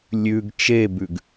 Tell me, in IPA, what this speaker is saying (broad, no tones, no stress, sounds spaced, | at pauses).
lʲ ʉ ɡ t͡ʃ e b ʉ ɡ